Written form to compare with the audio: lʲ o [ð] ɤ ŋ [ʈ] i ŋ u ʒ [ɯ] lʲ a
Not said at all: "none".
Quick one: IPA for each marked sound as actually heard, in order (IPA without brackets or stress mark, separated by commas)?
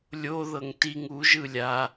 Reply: ð, t, ɯ